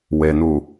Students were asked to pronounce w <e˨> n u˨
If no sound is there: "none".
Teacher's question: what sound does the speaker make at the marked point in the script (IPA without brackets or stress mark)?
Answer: e˨